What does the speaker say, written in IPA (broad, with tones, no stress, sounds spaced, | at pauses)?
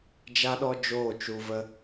d͡ʒ a˦ ɗ ɔ˦ d͡ʒ oː˦˨ t͡ʃ u˧ v ə˦